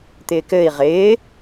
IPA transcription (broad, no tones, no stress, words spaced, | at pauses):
t̪ɪːkɘːi̯ ʁɪː